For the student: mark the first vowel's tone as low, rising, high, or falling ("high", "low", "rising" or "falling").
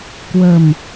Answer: low